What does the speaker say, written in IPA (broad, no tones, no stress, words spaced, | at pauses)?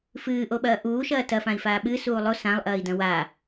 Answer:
fɨːʔoɓɐː ʔuːʃɐː tɐfãi̯faː ɓɨsuː lˠo sãlˠʔɐːi̯dɐ̃ wa